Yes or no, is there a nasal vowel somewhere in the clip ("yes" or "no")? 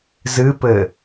no